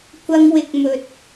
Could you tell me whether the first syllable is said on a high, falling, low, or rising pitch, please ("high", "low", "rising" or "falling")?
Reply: high